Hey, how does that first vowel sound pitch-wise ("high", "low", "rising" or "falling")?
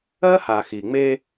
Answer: high